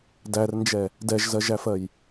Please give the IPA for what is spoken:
dærnd͡ʒɛ | dɛʒzɜʒæfɜj

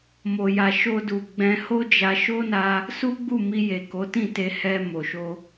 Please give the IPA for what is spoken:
mo˨ja˨ ʃo˧du˨ɡ͡bɛ̃˧ ho˦d͡ʒa˧ ʃo˦na˧ | su˦ɡ͡bu˦˨mi˧ je˨ko˨˦tĩ˦˨te˧ hɛ˧ mo˨ʃo˧

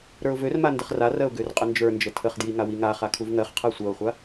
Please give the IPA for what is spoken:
ɾə˞ʊ̯vørma ndəχrarɜʊ̯ ɡørqʼənd͡ʒə˞nd͡ʒə tʰəχdji ŋawiŋaχa kʰuvŋɜχqʰɜ sʷɜʊ̯χʷa

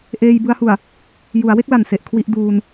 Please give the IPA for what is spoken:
ʔeː˧j bɯ˦˥a̯hu˨˩a̯ | ju˩˦a̯we˥˩k̚la˨˩n se˨˩ʔkʰwi˥˩ʔ duː˧n

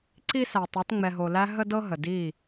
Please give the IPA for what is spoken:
ǀi˦sæ˨tˤɤ˨˦t ŋ͡mɛ˨ɦo˨læ˧ ɦə˦dɤ˦ɦə˨di˦˨

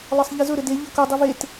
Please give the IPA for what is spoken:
lˠɤsˤʎizɵ ɾɘde ʎɤkɵ dˤivet

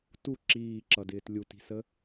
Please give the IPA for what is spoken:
tu ǁiːǁʌdɪːt lʲuti̤sə

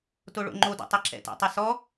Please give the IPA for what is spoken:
toɭo̰ŋ͡ǃodɔ̰ tˤɛǁɛ̰tɛ̰tˤa sɔ

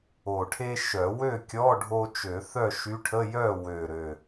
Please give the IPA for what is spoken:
o˨˩ʈʰe˥ ʃœ˨˩˦ wø˥˨kʲɔ˧˥˧ ɖʱo˥ t͡ʃø˨˩˦ θœ˥˨ʃy˧˥ʈʰə˧˥˧ jœ˥˨wø˨˩ɾø˨˩

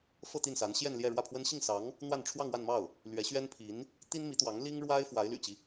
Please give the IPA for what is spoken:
fɤ˥˧t̪i˥˩nsa˧˥n ɕjɛ˥˧nljɛ˥˧ɻwä˥˩pʰwə˥n ɕi˥˩ŋsɑ˧˥ŋ | n̪wa˥˧n ʈ͡ʂʰwɑ˥˧ŋwa˥˧nmɑ˥˩ʊ̯ | lɥɛ˧˥ɕɥɛ˥npʰi˧˥n | t̪i˥nmi˧˥t̪wɑ˧˥ŋ li˥ŋɻwa˥ɪ̯ fwa˧˥ɪ̯ ly̰˨˩t͡ɕi˦

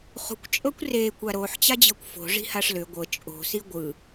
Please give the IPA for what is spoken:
χṳkʷt͡ʃʼɤkʷ re kʷaɾoħt͡ɕad͡ʑɤkʷ fo̤ ʐi̤haʂlʏ ɡʷɤ t͡ʃʼo̤si ɡʷɯ

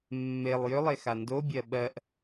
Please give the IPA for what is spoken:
mːelˠ jʏlˠexa ndobʲɜ ɓɜʔ

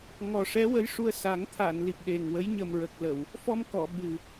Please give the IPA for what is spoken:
ŋɔ˨˩ʂɛ˧˥wə˧˥jʂu˧ə̯ sa˨˩˦ŋ t̪ʰa˨˩˨n li˨˩p̚ɗe˨˩ŋwə˧˥j ɲə˨˩mɹə˨˩k̚lə˨˩˨w | fɔ˧mkɔ˨˩˨ ɓɨ˨˩

